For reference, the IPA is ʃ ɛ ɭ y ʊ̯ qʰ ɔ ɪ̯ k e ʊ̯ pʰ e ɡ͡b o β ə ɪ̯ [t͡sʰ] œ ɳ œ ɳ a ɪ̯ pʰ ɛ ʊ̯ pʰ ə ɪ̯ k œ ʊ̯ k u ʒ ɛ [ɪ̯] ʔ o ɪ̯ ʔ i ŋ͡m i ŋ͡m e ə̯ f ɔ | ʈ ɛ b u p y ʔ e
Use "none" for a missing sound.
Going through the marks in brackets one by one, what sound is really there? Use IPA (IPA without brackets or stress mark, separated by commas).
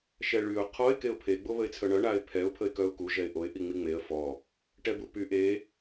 t͡sʰ, ɪ̯